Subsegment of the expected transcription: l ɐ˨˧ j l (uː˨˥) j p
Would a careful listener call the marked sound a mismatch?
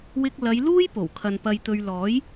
yes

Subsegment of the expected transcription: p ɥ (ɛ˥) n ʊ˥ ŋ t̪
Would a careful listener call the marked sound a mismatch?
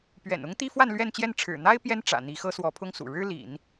yes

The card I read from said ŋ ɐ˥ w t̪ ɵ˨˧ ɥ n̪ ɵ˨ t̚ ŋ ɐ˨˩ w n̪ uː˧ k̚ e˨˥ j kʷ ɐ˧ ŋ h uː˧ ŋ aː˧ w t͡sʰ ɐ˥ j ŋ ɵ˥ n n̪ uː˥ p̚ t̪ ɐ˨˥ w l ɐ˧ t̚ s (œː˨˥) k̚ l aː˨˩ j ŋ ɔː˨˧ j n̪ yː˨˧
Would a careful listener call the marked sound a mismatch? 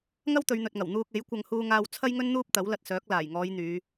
no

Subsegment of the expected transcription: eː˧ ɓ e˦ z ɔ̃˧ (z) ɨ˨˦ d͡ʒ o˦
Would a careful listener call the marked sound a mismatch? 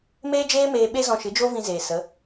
yes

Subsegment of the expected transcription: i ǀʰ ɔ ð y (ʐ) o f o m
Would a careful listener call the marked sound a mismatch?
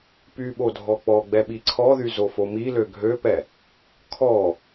yes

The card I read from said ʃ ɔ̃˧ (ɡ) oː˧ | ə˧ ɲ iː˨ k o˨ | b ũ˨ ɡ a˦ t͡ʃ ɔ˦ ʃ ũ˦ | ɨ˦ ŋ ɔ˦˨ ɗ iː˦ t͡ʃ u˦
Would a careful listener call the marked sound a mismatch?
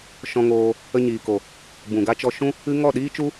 yes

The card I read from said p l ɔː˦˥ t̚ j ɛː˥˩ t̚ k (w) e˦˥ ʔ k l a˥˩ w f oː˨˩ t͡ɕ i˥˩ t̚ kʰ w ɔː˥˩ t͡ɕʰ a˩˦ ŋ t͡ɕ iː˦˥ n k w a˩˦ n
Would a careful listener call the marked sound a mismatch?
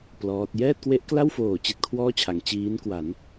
no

